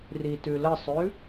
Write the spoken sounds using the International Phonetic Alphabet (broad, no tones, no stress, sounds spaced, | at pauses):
r i t ʉ l ə sˤ ʉ